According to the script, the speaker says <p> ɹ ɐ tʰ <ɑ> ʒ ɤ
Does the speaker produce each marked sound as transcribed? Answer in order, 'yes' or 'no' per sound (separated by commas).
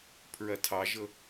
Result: no, yes